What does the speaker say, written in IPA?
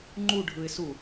ŋ͡ǃ u ɖʱ ɯ ɪ̯ s u

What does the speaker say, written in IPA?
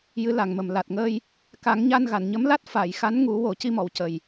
j ɨ˧˥ l a˨˩ ŋ m ə˨˩ m l a˨˩ t̚ ŋ əː˧ j | k a˨˩˦ ŋ ɲ a˧ n ɣ a˨˩˨ n ɲ ə˧˥ m l a˦˥ t̚ f a˨˩˨ j x a˧˥ n ŋ u˨˩˦ w o˨˩˦ c i˧ m ɔ˨˩˨ w c ə˨˩ j

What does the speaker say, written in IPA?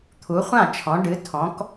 t̪ʰ u˨˦ χʷ ã˥˨ t͡ʃʰ ɔ̃˨˦ ɖ ɨ˨˦ tʰ ɔ̃˨˦ k

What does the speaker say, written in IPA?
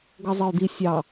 ɡ ʌ zˤ ɪ ʊ̯ d̪ i sʲ ɑ

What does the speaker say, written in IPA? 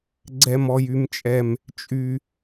ɡ͡ǀ ɛ˦ m ɔ˦ j y˦ m t͡ʃʼ ɛ˦ m | t͡ʃʼ y˦

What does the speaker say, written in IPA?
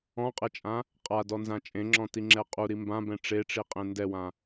ɔ̃ qʼ ɛ t͡ʃʼ ã | qʼ a d ɔ n z ã t͡ʃʼ ẽ ŋ͡ǁ ɔ̃ t i ŋ͡ǁ ɛ qʼ u ɾ i m b ã b ɛ̃ ʈ͡ʂ e ʈ͡ʂ i qʼ ẽ n d ɛ w ã

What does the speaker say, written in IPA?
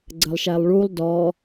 ɡ͡ǀ ə lˠ ʃ æ lˠ ɭ u lˠ d ɔ

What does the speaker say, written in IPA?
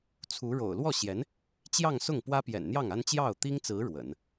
t͡sʰ u˧˥ ɻ o̰˨˩ ʊ̯ l w ɔ˥˩ ɕ j ɛ˧˥ n | t͡ɕ j ɑ˥˧ ŋ s ʊ˥˩ ŋ p w ä˥ p j ɛ̰˨˩ n n̪ j ɑ˥˩ ŋ a˥ n t͡ɕ j ɑ˥˩ ʊ̯ t̪ i˥ ŋ t͡s ɹ̩˧˥ ɻ w ə̰˨˩˦ n

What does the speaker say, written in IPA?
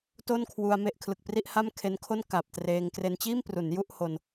t o˥˩ n kʰ w u˧ a̯ m e˥˩ ʔ kʰ l ɯ˨˩ k̚ p r i˥˩ ʔ h a˥˩ m kʰ e˦˥ n kʰ o˥˩ n k a˨˩ p̚ t r eː˧ ŋ k r e˧ n t͡ɕ iː˥˩ m p r u˩˦ n j u˥˩ ʔ h o˧ n

